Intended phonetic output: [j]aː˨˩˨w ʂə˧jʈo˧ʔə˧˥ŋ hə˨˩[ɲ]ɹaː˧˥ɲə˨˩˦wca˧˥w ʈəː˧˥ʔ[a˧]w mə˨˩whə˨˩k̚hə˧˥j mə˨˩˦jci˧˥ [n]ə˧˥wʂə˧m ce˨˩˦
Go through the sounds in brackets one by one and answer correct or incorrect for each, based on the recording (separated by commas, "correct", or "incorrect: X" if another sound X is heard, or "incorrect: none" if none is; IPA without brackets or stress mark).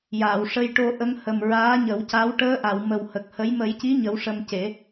correct, incorrect: m, incorrect: a˨˩˨, incorrect: ɲ